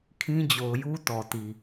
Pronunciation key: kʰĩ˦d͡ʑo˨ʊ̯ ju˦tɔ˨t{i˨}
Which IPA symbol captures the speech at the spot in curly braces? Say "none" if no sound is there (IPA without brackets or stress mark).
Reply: i˨